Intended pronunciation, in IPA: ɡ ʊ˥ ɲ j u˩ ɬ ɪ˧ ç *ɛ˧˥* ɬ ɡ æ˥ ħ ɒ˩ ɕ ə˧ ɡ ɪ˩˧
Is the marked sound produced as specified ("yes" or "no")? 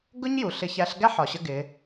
no